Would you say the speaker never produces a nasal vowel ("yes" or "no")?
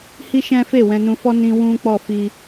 no